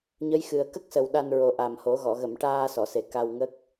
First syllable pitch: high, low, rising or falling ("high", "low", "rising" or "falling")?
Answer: rising